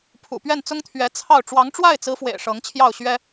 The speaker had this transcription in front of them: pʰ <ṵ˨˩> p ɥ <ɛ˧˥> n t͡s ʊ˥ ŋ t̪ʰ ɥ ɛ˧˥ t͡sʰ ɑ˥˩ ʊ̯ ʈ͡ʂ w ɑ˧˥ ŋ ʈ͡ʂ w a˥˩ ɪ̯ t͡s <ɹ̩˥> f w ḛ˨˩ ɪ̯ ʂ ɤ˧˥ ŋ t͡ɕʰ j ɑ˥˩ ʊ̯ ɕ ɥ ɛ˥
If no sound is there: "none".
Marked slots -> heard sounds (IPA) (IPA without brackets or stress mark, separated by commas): ṵ˨˩, ɛ˥˩, ɹ̩˧˥